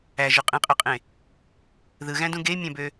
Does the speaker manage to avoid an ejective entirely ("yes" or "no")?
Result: no